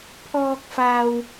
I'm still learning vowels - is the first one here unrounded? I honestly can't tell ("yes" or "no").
no